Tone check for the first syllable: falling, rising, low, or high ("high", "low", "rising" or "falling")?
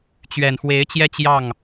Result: low